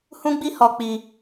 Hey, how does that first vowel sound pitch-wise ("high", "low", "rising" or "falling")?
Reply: high